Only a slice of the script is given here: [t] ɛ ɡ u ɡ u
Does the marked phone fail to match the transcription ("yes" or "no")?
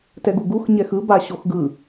no